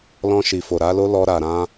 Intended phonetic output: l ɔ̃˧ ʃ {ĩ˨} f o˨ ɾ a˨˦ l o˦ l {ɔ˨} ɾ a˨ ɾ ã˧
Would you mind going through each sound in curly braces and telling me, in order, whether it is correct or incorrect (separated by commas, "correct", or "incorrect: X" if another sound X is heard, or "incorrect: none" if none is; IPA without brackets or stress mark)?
incorrect: i˨, incorrect: ɔ˧